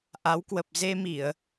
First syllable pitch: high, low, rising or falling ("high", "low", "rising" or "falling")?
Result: rising